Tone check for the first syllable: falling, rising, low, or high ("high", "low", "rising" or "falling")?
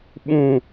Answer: falling